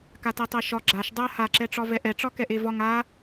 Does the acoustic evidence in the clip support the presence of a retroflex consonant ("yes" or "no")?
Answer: yes